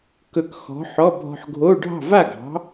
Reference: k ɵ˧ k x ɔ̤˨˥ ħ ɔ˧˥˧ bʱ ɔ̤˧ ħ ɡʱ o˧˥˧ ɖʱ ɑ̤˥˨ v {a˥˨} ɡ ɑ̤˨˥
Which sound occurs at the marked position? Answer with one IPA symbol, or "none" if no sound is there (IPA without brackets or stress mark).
a˥˨